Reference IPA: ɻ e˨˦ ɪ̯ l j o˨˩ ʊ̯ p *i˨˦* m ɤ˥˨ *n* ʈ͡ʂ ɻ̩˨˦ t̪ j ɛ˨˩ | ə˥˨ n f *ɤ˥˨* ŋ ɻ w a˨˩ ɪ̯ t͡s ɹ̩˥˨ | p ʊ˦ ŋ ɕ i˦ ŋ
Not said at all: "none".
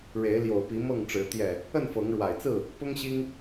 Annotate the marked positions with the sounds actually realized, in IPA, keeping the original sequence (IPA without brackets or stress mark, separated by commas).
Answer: i˨˦, ŋ, ɤ˨˦